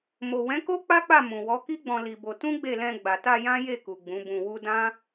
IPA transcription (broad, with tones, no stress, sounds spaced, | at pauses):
m o˨ w ɛ̃˨˦ k o˦ k͡p a˦ k͡p a˦˨ m ũ˨ w ɔ˨˦ k i˦ ɡ͡b ɔ̃˧ l i˧ b o˧ t ũ˦ ɡ͡b e˦˨ l ɛ̃˧ ɡ͡b a˨ t a˧ j ã˦ j e˦˨ k u˨ ɡ͡b ũ˨˦ b ũ˧ w u˦ d ã˦